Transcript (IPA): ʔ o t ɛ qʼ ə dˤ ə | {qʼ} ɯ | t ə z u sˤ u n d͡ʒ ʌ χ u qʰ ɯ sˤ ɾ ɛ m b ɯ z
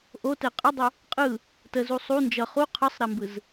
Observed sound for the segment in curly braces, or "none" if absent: qʼ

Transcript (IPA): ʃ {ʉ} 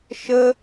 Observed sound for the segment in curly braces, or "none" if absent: ə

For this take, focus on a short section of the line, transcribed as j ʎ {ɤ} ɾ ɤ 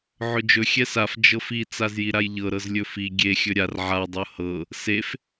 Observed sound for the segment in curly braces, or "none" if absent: ɤ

